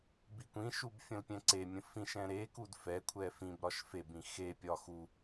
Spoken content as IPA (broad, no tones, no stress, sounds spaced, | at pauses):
b i kʷ ĩ ʃ u b fʲ ə̃ l pʲ ɛ̃ ǀ e mʲ ə̃ f ĩ ʃ ɛ̃ ɾ e k u d f ɛ kʷʰ ɛ f ĩ b ɾ ɒ ʃ f e b ĩ x e pʲ ɒ x u